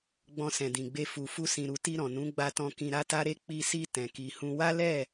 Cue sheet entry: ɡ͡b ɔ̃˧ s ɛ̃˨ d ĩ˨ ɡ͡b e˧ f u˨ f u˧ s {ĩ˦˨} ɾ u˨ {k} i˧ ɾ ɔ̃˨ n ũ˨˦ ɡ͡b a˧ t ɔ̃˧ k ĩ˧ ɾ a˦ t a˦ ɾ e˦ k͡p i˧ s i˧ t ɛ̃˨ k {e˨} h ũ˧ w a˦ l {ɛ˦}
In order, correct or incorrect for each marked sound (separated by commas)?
incorrect, incorrect, incorrect, incorrect